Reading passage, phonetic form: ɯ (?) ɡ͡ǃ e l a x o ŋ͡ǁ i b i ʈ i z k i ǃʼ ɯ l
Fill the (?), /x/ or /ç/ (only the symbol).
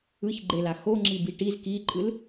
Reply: ç